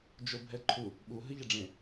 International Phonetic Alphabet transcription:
d͡ʒobʱɛǃʰu | ɓu ɦɨʎɛɖ͡ʐẽ

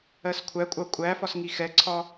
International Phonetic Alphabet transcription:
ɜskʷʰækʷʼɑ kʷʼæfɒs ŋixɛǀʰɒ

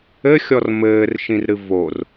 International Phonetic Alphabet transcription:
ɘxʲɔr mɘːrʃĩrɾɨ vor

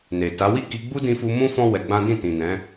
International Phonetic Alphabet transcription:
ne˨ta˨˦ wi˦˨ki˧ɡ͡bu˦ dĩ˧fu˧ mũ˦ fɔ̃˦ wɛ˧ɡ͡bã˦ dĩ˦˨ tĩ˨nɛ̃˨˦

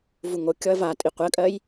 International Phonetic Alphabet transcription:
vuŋokʲɔɐ̯ vatʼi qʷɜkʼɜj

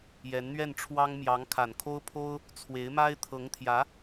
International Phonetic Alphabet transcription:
jɛ˧˥nn̪ɥɛ˥˩nʈ͡ʂʰwɑ˥ŋ mjɑ˧˥ŋkʰa˨˩nkʰo˥ʊ̯pʰo˥ʊ̯ | t͡sʰwe˧˥ɪ̯ma˥ɪ̯ t̪ʰɤ˧˥ŋt̪ʰjä˧˥

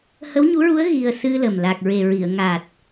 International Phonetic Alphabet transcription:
hə˧˥wɲu˧˥ɹu˧˥ə̯ ɣi˧ə̯ sɨ˧lə˨˩m la˨˩k̚ɹe˨˩ɹi˨˩˨ə̯ ŋa˨˩t̚

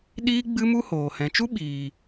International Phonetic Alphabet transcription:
ɗiː˦ ɡ͡bɨ˦mu˦hoː˨ hɛ̃˨t͡ʃu˦ ɓiː˨

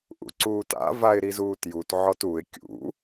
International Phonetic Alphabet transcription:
ʔṵǀuːta̰ vaɪ̯ɾizuːtjut ʕɔtuɪ̯ kʲṵ

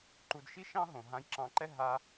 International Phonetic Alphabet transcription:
ǃu˧dʃi˦ʃɑ̃˦ ɦõ˨ ɦã˧jǁɑ̃˧ǃɛ˦ ɦa˧

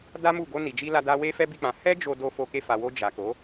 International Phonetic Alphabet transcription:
da˦mu˦˨ ɡo˧ni˨d͡ʒi˧ la˧ da˦ we˦fɛ˦bi˦˨k͡pã˨˦ hɛ˦ d͡ʒo˧do˧ fo˧ke˧fa˨ wo˧d͡ʒa˨ko˨˦

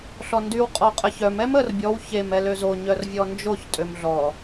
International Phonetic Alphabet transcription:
ɬɔndyw qʼɔqʼəçœm ɛmər bʲɔw çem ɛløzo ɲœrvʲɔnd͡ʒoç tʼømɮɔ

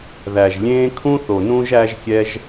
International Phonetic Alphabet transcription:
ðæ˨ʒlʲẽː˦ kʰũ˦θo˨ nũ˦ʒæ˦ʒkʲɛ˦ʒ

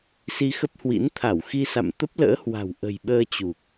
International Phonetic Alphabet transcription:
si˧xə˦˥p̚hwḭ˧˥n t̪ʰa˧˩wxi˧sa̰˧˨m t̪ə˦˥p̚lə̰ː˧˥hwa̤˨˩w ʔə̤˨˩jɓəː˧t͡ɕu˨˩k̚

